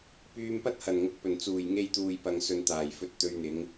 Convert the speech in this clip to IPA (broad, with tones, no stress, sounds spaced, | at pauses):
p yː˧ m p ɐ˥ t̚ h ɐ˨˩ n ŋ ʊ˨ k̚ p ɵ˨˩ n t͡s uː˨˩ j ŋ e˧ j t̪ uː˨ j p ɐ˨ ŋ s ɵ˨ n t̪ aː˨˩ j f ɵ˧ t̚ t̪ ɵ˧ ɥ n̪ ɪ˨˧ ŋ